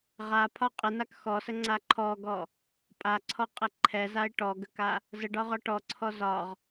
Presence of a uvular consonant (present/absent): present